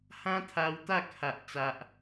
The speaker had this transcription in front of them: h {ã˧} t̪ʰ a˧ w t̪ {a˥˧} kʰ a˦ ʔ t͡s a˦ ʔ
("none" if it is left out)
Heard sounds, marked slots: ã˦, a˥˧

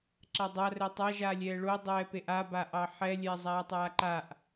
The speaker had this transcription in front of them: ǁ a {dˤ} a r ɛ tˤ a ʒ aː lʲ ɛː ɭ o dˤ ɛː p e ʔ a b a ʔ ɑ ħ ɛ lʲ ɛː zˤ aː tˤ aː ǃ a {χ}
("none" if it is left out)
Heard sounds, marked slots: dˤ, ʔ

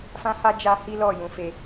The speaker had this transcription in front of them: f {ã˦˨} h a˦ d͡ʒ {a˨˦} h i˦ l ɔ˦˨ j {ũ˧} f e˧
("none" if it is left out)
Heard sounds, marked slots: ã˦, a˦, ũ˨˦

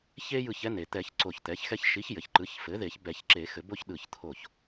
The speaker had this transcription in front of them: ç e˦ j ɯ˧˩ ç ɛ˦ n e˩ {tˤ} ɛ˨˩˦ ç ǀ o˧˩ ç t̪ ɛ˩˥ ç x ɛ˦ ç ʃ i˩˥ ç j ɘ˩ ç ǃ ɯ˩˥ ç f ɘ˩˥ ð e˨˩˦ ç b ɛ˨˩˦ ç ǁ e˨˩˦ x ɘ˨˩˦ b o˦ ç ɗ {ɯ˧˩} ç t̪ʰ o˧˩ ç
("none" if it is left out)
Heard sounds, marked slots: t̪, ɯ˧˩

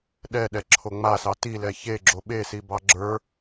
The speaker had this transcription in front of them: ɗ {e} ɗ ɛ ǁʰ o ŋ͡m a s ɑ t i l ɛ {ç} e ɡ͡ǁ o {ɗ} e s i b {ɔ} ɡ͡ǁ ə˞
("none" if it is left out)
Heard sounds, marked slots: ɛ, ç, ɓ, ɑ

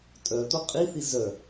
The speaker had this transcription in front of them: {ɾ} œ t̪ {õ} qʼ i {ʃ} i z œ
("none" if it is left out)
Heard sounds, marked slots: tʼ, o, θ

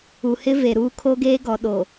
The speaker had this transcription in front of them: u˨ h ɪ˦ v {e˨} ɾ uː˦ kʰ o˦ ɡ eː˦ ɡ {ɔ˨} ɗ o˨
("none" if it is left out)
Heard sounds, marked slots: e˨, ɔ˨

